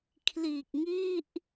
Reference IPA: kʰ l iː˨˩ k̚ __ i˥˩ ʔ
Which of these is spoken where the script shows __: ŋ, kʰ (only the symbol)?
ŋ